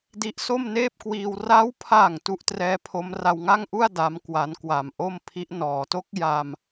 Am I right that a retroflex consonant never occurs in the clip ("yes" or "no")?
yes